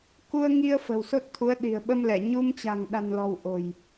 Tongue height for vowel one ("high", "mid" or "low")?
high